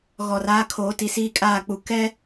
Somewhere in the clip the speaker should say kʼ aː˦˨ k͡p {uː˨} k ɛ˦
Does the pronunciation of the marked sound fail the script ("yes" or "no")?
yes